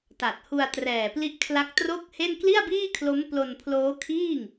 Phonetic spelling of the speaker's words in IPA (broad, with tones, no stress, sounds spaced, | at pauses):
t a˨˩ t̚ h u˧ a̯ t r ɛː˨˩ p l i˦˥ ʔ kʰ l a˦˥ k̚ t r o˥˩ k̚ h e˥˩ n k l i˥˩ a̯ b iː˥˩ kʰ l o˦˥ m p l o˧ n pʰ l oː˦˥ kʰ iː˥˩ ŋ